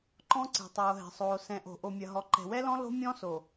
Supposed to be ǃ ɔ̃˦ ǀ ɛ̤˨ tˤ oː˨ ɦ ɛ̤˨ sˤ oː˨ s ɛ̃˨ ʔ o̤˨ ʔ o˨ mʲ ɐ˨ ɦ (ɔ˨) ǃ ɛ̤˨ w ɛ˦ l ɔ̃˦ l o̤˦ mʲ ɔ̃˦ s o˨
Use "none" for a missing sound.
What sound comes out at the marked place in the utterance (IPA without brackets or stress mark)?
ɔ˨